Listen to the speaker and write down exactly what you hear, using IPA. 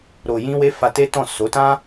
ɾo˨jĩ˧we˧ fa˧te˦tɔ̃˦˨ so˨˦tã˦

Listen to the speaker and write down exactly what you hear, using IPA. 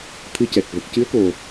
t̪ʰɨ˧˥cɛ˨˩k̚ və˨˩k̚cɨ˧˥ə̯ko˨˩

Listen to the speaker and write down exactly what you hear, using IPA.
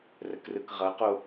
rəkrɯkʁʌqo

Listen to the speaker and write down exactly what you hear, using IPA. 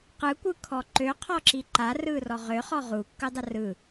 qɯkʷɯkʰɔ ǃøqʰɔǁi ǃarɯrɔ ʁøχɔ ʁukːɯdˤə rɯ

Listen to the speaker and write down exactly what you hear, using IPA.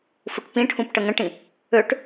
fuʈpĩʈʰũp ʈəŋə̃ʈĩ | øʈ

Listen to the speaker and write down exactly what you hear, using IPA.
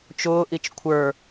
t͡ʃʊːʔit͡ʃ kʷʰə˞

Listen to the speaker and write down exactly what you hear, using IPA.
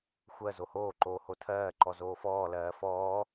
xʷɜ zohoːǃoː hotʰɜːǃɔ zoːfɔːlɜː fɔː

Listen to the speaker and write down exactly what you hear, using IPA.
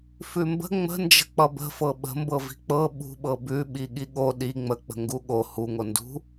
fʉmbə̤ ŋ͡mə̤nd͡ʒə̤ k͡pʌbə̤fɤ ɓə̤mbɤ vi̤k͡pɤ ɓṳ ɓɤbʉ ɓiɠiɠo ɗi ŋ͡mək͡pə̤ ŋɡuɠo huŋo ndṳ

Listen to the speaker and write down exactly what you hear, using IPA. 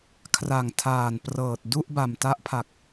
kʰra˨˩ŋtʰaː˨˩nprɤː˨˩t̚ du˥˩ʔba˨˩mta˦˥ʔpʰa˨˩k̚

